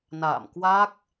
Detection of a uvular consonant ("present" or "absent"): absent